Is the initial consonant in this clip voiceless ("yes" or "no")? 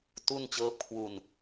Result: yes